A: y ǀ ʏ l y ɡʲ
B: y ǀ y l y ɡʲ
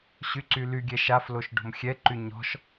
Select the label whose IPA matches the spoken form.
B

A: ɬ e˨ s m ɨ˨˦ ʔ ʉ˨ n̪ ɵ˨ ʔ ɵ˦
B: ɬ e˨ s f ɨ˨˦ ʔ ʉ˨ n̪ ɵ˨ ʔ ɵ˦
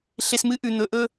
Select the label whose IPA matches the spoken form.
A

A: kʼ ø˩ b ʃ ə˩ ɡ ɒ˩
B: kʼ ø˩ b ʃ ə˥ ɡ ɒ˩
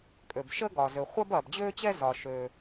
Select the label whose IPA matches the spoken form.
B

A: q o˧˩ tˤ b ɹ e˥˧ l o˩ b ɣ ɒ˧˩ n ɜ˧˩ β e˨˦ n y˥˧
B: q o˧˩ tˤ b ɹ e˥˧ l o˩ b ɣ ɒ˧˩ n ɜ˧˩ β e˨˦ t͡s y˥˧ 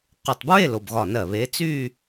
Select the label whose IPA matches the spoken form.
B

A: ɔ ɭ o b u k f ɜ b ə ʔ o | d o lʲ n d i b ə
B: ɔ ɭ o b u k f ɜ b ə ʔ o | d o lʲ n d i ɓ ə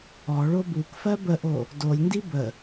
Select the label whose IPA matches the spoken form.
A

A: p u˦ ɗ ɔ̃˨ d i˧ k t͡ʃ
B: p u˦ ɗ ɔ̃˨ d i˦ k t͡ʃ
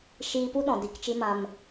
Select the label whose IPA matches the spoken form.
A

